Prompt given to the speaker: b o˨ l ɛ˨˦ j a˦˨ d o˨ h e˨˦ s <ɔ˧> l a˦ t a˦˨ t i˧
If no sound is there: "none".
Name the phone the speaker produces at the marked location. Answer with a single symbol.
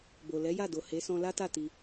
ɔ̃˧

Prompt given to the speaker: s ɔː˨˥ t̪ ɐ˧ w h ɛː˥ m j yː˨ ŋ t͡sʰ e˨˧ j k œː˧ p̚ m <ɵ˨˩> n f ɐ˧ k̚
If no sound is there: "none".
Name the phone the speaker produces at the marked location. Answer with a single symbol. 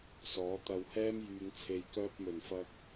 ɵ˨˩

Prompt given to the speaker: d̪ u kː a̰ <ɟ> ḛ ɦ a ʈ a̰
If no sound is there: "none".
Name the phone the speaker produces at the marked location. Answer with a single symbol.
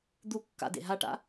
d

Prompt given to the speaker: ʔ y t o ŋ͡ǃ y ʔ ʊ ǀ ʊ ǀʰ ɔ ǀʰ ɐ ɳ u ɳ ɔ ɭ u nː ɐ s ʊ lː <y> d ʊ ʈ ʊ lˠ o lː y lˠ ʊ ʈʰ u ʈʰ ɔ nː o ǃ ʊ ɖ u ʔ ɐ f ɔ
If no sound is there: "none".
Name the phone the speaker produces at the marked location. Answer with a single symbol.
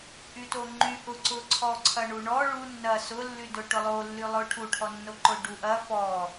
y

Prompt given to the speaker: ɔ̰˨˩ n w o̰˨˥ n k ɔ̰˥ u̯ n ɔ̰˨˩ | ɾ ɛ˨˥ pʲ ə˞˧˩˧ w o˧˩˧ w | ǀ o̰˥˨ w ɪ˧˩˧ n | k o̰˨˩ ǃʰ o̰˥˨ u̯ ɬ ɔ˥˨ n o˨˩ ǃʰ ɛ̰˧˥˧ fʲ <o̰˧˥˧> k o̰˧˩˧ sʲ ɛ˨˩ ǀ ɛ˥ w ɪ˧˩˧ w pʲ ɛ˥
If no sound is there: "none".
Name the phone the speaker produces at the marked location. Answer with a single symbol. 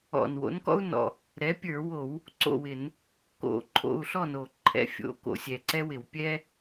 o̰˧˥˧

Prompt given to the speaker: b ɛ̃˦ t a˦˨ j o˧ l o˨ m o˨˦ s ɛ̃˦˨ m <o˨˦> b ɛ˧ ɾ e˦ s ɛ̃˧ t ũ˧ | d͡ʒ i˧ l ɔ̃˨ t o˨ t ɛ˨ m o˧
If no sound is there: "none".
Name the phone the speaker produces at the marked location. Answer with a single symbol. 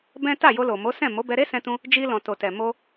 o˨˦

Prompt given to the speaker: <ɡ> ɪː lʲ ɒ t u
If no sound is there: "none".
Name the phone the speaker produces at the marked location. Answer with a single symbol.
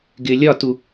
ɡ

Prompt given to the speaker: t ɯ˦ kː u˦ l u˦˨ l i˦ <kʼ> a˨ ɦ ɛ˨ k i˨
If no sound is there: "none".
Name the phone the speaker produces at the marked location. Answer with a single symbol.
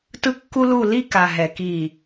k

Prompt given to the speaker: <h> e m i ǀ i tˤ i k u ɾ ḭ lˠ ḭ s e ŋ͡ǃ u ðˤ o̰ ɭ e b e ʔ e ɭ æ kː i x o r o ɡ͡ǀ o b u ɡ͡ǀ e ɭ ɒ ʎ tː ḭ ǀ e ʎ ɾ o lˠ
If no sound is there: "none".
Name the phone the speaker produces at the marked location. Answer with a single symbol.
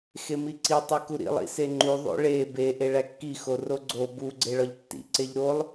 x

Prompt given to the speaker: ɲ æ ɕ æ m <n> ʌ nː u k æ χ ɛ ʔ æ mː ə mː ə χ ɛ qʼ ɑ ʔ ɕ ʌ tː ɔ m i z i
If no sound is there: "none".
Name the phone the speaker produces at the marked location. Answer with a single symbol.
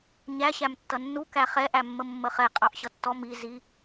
tː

